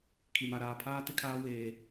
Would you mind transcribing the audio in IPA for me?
kʰ i˦ m a˦ ɾ aː˦ pʰ aː˦ t ɪ˦ kʰ aː˦ w eː˦

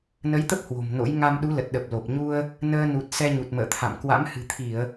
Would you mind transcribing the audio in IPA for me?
n ə˨˦ j t̪ ə˦˥ p̚ h w o̤˨˩ m n o̰˧˥ j ŋ a˧ m ɗ u˨˦ l ə˨˩ t̚ ɗ ə˨˩ p̚ l o˨˩ p̚ ɲ u˧ ə̯ | n əː˧ n u˨˩ t̚ s ɛ˧ ɲ u˨˩ t̚ m ə̰ː˧˨ t̪ʰ a̰˧˨ m k w a̰˧˥ m h ɨ̤˨˩ t̪ʰ i˧˩˨ ə̯

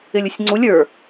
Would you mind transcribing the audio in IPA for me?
ɪ lʲ ʊ sʲ ŋ͡ǀ u lʲ ə˞

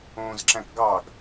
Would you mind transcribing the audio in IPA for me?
õː z ǁ æ̃ k ɡ ɑ ɡ

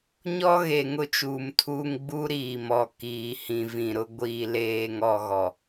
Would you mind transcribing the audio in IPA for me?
ɲ ɔ˦ ɣ e˨ ŋ ʊ˦ t͡ʃ uː˨ m tʰ uː˦ ŋ ɡ͡b u˦ ɾ iː˨ m ɔ˨ k iː˨ h ĩ˨ v ĩ˨ ɾ ʊ˦ ɡʷ iː˨ l eː˨ ŋ ɔ˨ ɣ ɔ˨

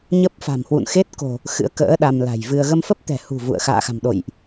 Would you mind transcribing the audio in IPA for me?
ɲ ə˦˥ p̚ f a̤˨˩ m h w ṵ˧˨ n x e˦˥ t̚ k o̤˨˩ | x ɨ̰˧˥ ə̯ k ə̰ː˧˥ ɗ a˧ m l a̤˨˩ j v ɨ˧ ə̯ ɣ ə˧ m f ə˦˥ p̚ t̪ ɛ̤˨˩ h ṳ˨˩ v ṵ˧˨ ə̯ x a̰ː˧˨ x a̤˨˩ m ɗ o̰˧˨ j ʔ

